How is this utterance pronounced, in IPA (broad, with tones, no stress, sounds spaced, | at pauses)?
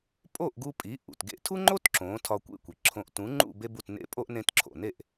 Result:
pʼ o˥˩ ʔ ɡ u˧ pʼ i˩˥ ʔ ṵ˩ t ɡ ḛ˧ tʰ u˥ ŋ͡ǃ o˥ t ǁ õ˩˥ tʰ ɒ˧ kʷ ḛ˥˩ kʷ i˩ ǁʰ õ˧ ʔ t ũ˩˥ ŋ͡ǃ ṵ˥˩ b e˥ b u˥˩ t n ḛ˥ pʼ o˥ ʔ n ẽ˧ t ǁʰ o̰˩ n e˥˩ ʔ